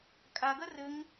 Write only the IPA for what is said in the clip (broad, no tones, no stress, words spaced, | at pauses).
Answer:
kʼa ɡɐrɘŋ